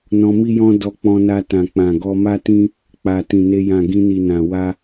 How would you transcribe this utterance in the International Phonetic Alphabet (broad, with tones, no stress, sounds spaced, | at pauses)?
n ɔ̃˧ m i˦ j ɔ̃˦ d ɔ˧ k͡p ɔ̃˧ n a˧ t ã˨ k͡p ã˨ ɡ ɔ˧ m a˦ t ĩ˦ | k͡p a˨ t ĩ˨ n e˧ j ã˨ ɡ ĩ˧ n i˨ n ã˨ w a˧